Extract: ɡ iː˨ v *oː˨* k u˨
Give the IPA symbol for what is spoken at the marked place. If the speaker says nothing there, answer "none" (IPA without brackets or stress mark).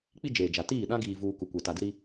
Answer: uː˨